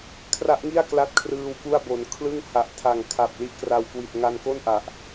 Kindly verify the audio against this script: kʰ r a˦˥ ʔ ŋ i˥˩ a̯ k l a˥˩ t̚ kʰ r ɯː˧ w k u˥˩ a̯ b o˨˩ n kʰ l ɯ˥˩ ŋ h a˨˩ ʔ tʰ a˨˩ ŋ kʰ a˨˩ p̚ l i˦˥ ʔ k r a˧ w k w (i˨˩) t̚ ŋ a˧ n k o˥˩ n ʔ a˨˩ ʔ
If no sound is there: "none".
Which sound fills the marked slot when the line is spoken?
i˨˩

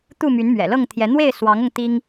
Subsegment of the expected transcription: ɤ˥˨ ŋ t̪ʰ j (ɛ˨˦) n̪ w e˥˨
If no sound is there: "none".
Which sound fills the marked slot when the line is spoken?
ɛ˨˦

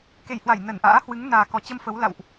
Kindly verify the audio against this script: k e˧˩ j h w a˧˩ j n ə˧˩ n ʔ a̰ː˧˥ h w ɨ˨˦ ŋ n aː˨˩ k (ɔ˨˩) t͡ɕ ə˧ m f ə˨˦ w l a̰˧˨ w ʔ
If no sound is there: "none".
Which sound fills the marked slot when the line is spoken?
ɔ˨˩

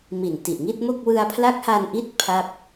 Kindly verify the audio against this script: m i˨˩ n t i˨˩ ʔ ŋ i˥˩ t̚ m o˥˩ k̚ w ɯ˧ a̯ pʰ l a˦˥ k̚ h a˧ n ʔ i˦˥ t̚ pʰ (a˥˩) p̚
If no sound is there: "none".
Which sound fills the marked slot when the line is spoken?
a˥˩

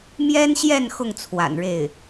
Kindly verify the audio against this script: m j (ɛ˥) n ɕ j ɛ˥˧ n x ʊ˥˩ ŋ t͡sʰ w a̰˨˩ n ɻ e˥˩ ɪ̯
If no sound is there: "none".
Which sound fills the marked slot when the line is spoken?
ɛ˥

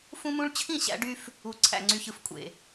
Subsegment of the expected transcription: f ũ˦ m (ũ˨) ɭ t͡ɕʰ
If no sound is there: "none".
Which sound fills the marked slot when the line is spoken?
ũ˦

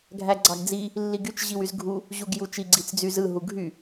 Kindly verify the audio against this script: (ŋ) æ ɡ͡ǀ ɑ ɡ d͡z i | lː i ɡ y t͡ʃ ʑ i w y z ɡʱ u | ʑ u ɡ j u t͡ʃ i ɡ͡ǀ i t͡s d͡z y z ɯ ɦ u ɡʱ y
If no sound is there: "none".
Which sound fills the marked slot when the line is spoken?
ɡʱ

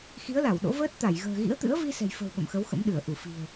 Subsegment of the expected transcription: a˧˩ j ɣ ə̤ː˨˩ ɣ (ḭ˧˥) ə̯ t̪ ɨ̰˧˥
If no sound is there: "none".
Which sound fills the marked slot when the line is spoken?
ḭ˧˥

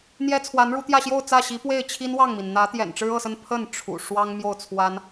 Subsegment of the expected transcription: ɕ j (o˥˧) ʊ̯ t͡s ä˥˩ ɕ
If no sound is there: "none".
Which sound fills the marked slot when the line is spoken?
o˥˧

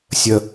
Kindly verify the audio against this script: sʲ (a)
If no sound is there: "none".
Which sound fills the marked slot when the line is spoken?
ə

